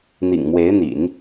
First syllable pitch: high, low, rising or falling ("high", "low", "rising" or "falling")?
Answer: low